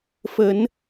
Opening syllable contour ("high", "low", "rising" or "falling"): rising